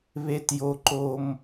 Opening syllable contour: high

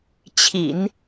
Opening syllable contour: low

